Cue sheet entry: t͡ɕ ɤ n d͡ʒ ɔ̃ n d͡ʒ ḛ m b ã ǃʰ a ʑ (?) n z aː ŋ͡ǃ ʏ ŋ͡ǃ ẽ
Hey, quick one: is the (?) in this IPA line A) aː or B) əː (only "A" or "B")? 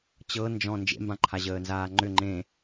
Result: B